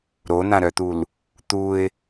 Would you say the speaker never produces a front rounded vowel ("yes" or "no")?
no